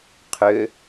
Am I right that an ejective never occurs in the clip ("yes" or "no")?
yes